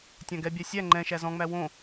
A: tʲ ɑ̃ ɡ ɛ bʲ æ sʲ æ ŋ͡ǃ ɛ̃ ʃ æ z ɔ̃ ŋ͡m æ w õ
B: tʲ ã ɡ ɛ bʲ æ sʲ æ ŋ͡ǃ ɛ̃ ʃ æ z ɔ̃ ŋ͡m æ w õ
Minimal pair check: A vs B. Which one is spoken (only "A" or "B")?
B